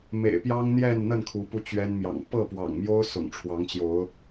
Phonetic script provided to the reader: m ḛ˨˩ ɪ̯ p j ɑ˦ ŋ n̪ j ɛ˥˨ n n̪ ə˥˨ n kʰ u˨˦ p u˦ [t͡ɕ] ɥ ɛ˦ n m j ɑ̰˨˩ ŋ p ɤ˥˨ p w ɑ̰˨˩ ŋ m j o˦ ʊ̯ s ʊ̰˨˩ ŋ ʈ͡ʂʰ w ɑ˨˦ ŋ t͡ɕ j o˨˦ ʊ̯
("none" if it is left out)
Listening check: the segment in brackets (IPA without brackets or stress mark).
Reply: t͡ɕ